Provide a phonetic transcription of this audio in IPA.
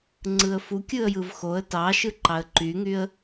ŋ͡ǀ ɯ ə̯ f u kʲ ɯ ə̯ j ɯ v x o ə̯ t ɑ ʃ ɯ ǃ ɑ ə̯ ǃ y ŋ y ə̯

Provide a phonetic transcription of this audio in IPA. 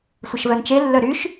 sʷ ə ʃ v œ n t͡ʃ e lː œ ɾ y ʃ

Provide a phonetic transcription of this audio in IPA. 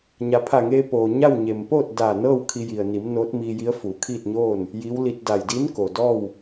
ɲ a˩˧ pʰ a˧˩ ŋ eː˧ p oː˩ ɲ a˥˨ w ɲ e˩ m p oː˥˨ t̚ d aː˧˩ n ɤː˥˨ w kʰ i˧ j i˩ ə̯ n i˩˧ m n oː˧˥ t̚ m iː˧ j i˧˥ ə̯ f uː˩˧ kʰ iː˥˨ t̚ ɲ oː˥˨ n | j i˧˥ w l i˧ t̚ d a˧˩ j d i˧˥ n k o˩ d ɔː˥˨ w

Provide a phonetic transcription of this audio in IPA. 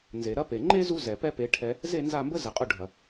n z e˨ ɾ ɐ˦ p e˨ ŋ͡ǃ e˦ z u˧ z ɛ˨ p ɛ˦ p e˨˦ ʈʰ ɛ˧ | z e˦˨ n z a˦˨ m b ə˦ z ɛ˨ qʼ ʊ˦˨ ɖʱ ɐ˨

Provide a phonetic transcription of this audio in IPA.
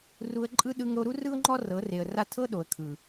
r u˧ ə̯ ǃʼ ɯ˦ ɗ ɯ˧ ŋ ɾ o˧ ɾ u˦ r ɯ˦ ʊ̯ ŋ͡ǃ ɔ˦ r ɤ˨˦ r e˨ ə̯ r a˦ tʰ ɤ˦ ɗ o˨ ə̯ kʰ ɯ˨

